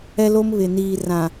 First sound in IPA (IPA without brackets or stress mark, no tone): ɛ